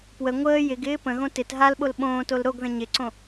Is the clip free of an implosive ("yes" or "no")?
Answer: no